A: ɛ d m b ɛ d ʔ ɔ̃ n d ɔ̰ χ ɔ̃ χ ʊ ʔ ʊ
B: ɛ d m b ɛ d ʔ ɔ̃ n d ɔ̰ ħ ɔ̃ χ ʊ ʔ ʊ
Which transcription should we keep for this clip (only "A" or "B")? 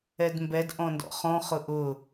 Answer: A